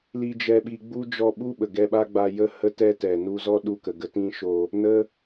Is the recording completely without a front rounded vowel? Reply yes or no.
yes